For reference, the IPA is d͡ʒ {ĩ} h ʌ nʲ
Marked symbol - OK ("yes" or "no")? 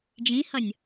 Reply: yes